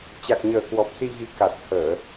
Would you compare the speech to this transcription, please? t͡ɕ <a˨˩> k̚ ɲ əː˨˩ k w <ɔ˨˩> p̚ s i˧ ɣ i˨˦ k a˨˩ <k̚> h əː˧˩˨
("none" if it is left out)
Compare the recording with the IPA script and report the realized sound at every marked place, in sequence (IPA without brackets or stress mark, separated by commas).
a˨˩, ɔ˨˩, t̚